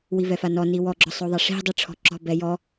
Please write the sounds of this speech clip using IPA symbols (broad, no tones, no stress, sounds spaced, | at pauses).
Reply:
w i v ɛ f a n ɔ n i w ɔ ɡ͡ǁ ɔ sˤ o ðˤ a ʂ i̤ dˤ i ʈ͡ʂʰ ɔ̤ ǁ ɔ̤ b ɛ j ɔ